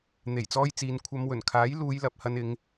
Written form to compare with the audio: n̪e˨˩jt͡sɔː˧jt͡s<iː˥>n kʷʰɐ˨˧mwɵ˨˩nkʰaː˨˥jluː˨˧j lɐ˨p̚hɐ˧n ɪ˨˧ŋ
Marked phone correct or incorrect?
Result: incorrect